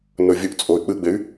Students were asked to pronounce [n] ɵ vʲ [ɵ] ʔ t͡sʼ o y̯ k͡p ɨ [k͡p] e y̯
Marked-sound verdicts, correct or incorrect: correct, correct, incorrect

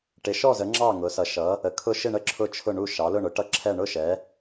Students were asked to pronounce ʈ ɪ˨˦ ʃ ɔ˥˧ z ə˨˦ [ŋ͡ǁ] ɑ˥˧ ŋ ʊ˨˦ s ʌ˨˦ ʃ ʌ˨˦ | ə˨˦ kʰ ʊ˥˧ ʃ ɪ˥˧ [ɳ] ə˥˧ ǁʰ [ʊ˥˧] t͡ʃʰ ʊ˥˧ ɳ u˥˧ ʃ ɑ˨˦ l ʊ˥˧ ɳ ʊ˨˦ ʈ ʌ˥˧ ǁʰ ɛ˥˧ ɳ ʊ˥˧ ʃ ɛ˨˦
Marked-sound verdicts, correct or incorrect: correct, correct, correct

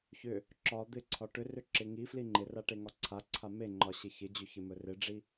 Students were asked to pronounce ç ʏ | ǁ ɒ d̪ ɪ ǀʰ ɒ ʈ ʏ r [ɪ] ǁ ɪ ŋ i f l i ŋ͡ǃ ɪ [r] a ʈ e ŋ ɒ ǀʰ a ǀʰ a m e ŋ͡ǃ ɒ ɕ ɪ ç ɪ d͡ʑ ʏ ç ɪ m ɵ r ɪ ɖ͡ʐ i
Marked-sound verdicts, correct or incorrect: incorrect, correct

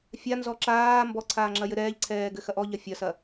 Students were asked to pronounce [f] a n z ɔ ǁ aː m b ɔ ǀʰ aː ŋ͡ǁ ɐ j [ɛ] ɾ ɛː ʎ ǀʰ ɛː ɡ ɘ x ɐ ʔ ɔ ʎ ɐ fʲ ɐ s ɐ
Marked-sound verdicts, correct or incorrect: incorrect, incorrect

